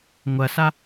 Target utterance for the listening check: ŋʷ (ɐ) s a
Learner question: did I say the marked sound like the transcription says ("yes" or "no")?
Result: yes